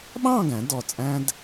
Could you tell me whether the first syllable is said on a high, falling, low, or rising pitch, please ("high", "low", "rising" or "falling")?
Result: falling